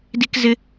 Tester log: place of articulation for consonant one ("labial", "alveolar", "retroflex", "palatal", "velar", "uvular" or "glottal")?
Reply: alveolar